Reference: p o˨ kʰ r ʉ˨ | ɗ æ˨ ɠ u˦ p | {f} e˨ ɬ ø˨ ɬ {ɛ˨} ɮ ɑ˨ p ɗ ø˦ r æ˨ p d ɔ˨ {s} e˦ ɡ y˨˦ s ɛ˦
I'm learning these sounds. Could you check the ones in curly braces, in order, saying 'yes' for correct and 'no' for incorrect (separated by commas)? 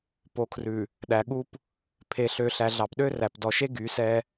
no, no, no